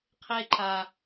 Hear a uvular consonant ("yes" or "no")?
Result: yes